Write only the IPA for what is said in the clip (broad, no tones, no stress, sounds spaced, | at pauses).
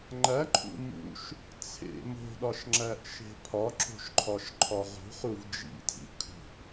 ŋ͡ǃ æ ǃʰ ṵ m ṵ ʃ | t͡sʰ ḛ m o̤ ɗ ɒ ʃ ŋ͡ǁ æ ʔ ʃ e̤ pʰ ɒ ǁ o̤ ʃ ǃʰ ɒ ʃ ǃʰ ɒ ʁ ṳ χ u v d͡ʒ ḭ tʰ ḭ kʰ ṳ ʔ